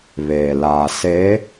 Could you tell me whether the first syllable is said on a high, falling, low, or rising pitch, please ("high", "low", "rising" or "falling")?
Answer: low